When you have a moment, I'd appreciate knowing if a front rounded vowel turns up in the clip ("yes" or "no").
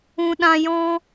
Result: no